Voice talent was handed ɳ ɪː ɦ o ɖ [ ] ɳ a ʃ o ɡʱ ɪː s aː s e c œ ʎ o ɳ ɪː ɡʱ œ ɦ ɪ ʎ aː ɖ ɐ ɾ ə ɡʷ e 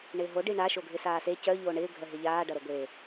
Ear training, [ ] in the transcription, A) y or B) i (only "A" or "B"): B